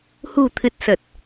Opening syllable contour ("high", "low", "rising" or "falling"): low